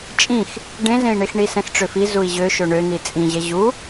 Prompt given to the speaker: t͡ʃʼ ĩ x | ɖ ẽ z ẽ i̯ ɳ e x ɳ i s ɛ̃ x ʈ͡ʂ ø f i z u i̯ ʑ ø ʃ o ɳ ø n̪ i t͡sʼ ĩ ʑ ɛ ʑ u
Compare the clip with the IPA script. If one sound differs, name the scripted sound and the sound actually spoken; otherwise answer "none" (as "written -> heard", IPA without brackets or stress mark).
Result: none